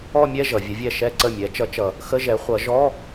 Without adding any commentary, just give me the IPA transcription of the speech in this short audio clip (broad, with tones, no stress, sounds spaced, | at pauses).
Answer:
ɔ˥˧ mʲ ɛ˥˧ ʒ ʌ˩˧ vʲ ə˨˥ vʲ ɛ˥˩ ʃ ɛ˥˧ ǀ ə˥˩ mʲ ɛ˨˥ t͡ʃ ʌ˨˥ t͡ʃ ʌ˨˩ | x ə˧˥˧ ʒ ɛ˨˥ χʷ ʌ˨˥ ʒ ɔ˧˥˧